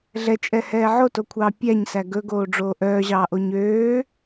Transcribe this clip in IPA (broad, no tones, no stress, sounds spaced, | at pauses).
ɮ ɛ t͡ʃʼ ɛ h ɛː ʕ o t o kʷʰ ɑː pʲ æ ɲ s æ ɡ ɵ ɡ oː ɖ͡ʐ oː ʔ œː ʑ ɑː ʔ o ɲ øː